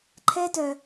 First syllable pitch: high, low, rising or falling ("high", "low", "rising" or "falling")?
high